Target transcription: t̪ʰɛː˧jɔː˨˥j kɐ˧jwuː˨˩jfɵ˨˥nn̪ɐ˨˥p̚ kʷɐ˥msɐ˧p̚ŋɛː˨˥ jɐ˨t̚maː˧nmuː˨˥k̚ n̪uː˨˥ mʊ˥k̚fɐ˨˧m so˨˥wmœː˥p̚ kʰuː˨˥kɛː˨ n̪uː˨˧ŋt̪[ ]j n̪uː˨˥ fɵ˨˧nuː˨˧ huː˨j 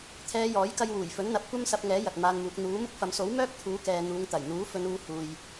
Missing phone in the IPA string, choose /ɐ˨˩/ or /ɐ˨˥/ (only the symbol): ɐ˨˩